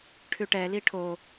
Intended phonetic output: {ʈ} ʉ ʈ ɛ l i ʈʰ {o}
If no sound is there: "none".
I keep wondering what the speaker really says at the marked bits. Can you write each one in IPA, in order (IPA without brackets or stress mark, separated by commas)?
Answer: ʈʰ, o